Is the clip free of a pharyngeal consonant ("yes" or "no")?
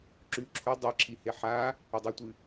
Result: no